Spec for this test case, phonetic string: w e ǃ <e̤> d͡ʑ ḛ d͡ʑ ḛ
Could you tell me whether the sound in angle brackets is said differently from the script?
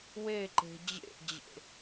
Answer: no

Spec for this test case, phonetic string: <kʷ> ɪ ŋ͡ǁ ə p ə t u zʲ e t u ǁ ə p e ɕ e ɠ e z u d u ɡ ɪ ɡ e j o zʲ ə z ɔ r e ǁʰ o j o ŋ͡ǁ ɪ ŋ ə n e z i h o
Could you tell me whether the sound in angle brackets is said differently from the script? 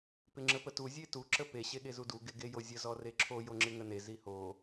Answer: yes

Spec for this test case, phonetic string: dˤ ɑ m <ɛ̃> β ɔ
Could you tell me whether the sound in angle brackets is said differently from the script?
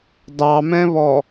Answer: no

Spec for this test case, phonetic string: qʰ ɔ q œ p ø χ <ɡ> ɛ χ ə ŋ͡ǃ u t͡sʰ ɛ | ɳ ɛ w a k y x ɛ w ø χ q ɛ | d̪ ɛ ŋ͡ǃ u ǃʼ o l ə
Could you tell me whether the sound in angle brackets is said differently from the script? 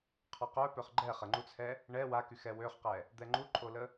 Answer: yes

